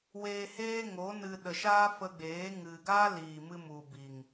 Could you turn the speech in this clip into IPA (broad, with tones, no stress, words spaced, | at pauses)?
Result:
weː˧heː˦ŋo˨˦nɨ˧ ɗə˨ʃaː˦fə˧ɡ͡beː˨˦ ŋɨ˨ɡa˦ liː˨mɨ˧ mu˨bi˨ŋ